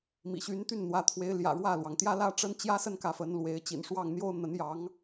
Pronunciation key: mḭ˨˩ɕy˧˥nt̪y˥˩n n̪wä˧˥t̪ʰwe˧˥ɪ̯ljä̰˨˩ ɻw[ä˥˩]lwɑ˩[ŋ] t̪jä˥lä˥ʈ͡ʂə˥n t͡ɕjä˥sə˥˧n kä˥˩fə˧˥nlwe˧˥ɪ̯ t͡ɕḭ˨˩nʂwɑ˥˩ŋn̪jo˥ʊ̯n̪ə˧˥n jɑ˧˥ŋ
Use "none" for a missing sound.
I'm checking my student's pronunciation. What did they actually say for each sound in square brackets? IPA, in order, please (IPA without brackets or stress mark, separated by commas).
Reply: ä˥˩, ŋ